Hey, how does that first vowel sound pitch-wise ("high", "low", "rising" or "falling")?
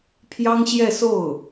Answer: high